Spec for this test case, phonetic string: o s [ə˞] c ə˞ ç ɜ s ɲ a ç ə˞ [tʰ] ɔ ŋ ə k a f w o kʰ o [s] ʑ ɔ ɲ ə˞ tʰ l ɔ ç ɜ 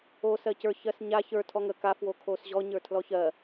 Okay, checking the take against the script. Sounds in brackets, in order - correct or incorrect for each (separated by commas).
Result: incorrect, correct, correct